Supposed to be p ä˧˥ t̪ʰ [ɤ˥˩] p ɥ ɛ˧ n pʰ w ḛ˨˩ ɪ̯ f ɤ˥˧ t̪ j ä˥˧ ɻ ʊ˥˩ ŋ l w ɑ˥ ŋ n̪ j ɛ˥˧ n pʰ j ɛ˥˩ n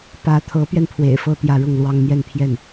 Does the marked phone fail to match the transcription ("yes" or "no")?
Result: yes